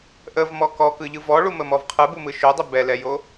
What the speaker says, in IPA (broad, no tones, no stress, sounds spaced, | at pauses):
ʔ ə v m ɔ k ɔ k ɯ ʎ ɯ v ɔ ɭ u m ə m ɔ v qʰ ɯ b u m ɯ ʃ o dˤ ə b ɛ l ɛ j o